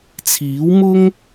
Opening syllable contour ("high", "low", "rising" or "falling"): rising